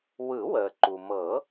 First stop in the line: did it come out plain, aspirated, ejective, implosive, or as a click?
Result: click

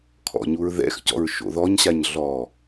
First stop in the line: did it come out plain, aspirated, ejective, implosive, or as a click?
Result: aspirated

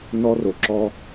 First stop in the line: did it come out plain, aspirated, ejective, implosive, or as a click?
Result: click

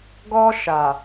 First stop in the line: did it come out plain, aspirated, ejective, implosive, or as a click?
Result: plain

